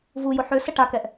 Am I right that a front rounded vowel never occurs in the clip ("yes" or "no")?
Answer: no